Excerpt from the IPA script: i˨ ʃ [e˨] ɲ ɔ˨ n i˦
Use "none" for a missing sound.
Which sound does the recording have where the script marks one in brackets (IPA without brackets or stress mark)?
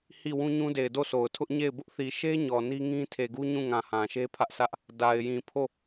e˦